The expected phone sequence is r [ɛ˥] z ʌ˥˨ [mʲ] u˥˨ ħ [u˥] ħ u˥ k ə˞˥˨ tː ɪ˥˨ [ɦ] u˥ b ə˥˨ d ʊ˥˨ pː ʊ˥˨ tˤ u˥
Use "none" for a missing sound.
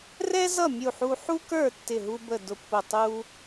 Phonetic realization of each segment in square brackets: ɛ˥, mʲ, u˥, ɦ

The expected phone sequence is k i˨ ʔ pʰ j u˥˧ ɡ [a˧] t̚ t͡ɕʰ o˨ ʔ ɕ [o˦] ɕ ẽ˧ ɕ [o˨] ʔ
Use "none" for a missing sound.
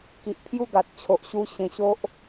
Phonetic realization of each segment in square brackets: a˨, u˦, o˦

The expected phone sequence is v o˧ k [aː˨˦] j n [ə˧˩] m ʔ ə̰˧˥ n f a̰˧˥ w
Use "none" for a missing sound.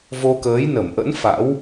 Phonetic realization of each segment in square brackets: əː˨˦, ə˧˩

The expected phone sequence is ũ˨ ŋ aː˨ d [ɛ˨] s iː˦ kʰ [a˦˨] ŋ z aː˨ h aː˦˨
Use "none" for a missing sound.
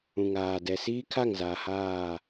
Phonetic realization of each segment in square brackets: ɛ˨, a˦˨

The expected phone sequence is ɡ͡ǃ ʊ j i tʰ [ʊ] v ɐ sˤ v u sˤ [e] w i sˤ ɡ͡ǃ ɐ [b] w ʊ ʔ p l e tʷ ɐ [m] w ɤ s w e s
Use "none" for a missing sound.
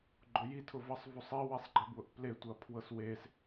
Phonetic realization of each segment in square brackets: ʊ, i, b, pʰ

